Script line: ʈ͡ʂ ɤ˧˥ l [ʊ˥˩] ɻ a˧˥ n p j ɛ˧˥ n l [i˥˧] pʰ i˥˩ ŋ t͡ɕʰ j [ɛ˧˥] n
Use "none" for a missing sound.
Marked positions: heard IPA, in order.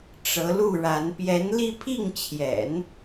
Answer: u˥˩, i˥˧, ɛ̰˨˩˦

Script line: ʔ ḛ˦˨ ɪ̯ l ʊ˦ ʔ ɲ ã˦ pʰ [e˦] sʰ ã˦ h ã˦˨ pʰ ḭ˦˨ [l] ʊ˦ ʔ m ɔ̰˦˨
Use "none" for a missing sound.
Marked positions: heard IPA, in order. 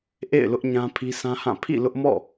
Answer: i˦, l

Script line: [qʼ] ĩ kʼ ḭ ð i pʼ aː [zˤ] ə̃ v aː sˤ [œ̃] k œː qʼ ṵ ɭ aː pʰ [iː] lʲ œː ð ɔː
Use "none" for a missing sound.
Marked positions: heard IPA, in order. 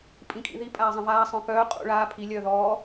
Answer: pʼ, zˤ, œ̃, i

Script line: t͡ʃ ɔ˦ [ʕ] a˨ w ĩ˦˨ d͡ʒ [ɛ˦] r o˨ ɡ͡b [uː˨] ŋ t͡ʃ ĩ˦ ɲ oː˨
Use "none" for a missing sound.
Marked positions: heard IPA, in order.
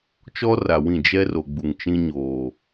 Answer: r, ɛ˦, u˨

